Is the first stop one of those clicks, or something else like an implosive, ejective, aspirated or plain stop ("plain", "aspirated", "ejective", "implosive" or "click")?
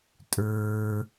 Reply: ejective